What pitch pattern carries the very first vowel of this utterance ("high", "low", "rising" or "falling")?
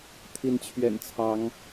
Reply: rising